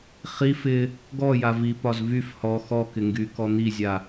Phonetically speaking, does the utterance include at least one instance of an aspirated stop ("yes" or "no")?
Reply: no